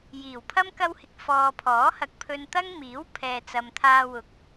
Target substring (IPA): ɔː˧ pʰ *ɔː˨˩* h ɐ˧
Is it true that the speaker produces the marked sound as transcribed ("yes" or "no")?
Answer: no